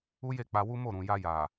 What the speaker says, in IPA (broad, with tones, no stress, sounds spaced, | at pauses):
u˦ j e˦˨ k͡p a˧ w u˦ m o˦˨ ɾ ũ˨ j a˧ j a˨